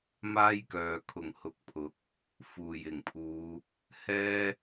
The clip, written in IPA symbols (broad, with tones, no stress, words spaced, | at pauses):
maː˥jkœː˨ kʰʊ˨˩ŋhʊ˨˥k̚pʰʊ˨˥k̚ | fuː˨˩j ɪ˨˩ŋpʰuː˨˧ | hɛː˥